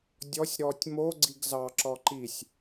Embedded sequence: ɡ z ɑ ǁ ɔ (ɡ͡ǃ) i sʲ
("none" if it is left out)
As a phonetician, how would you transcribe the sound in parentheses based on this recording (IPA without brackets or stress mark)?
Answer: ǃ